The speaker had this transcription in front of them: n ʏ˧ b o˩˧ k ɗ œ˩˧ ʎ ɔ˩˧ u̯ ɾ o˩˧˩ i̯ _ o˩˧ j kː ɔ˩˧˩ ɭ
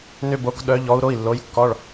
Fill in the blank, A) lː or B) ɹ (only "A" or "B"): A